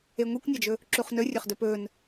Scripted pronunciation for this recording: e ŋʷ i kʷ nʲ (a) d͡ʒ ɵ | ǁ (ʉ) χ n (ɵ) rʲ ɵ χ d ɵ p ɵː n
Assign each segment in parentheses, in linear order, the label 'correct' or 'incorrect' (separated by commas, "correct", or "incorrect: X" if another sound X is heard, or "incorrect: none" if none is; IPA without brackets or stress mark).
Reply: correct, incorrect: u, correct